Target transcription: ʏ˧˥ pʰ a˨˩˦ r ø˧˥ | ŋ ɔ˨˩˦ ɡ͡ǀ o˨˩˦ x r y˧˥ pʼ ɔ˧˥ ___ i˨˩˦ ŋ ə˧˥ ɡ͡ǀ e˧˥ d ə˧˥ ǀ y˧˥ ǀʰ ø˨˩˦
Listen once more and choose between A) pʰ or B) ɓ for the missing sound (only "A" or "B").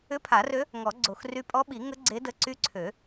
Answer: B